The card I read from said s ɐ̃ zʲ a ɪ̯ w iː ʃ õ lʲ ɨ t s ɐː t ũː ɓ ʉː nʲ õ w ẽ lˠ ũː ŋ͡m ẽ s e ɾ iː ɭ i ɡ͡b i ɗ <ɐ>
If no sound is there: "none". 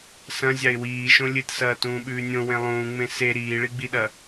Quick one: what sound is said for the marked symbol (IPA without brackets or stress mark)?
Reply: ɐ